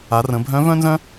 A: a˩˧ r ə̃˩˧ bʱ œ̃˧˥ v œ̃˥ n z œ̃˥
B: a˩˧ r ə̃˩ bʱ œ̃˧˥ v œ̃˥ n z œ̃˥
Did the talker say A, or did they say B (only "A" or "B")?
A